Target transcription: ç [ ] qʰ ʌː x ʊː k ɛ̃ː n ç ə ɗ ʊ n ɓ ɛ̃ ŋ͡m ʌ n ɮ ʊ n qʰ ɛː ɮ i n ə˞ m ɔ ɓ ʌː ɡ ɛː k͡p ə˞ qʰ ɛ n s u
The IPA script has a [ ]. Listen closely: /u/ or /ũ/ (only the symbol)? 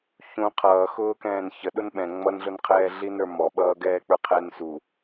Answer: ũ